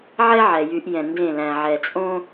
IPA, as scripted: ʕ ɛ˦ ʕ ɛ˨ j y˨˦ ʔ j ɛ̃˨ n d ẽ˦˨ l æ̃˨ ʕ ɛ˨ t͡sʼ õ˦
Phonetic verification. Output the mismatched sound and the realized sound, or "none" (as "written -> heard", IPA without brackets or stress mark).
none